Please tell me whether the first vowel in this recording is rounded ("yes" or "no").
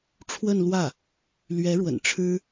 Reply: no